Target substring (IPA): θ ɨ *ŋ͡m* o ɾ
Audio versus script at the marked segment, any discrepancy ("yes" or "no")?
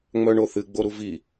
yes